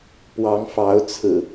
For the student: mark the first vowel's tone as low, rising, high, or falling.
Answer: rising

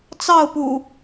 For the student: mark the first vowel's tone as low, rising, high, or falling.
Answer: falling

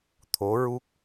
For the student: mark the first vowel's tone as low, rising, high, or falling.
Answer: rising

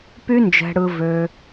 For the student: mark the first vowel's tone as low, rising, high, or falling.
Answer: high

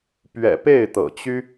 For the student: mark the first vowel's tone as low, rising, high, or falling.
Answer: low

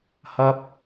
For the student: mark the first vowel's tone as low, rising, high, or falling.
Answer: high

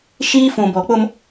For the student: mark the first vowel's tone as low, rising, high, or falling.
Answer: high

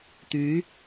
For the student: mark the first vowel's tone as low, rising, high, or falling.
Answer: rising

